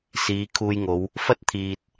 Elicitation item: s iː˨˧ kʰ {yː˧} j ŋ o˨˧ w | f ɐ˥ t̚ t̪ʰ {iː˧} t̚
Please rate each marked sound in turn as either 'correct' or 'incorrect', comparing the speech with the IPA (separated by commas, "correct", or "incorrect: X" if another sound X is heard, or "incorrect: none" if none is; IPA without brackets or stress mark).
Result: incorrect: uː˧, incorrect: iː˨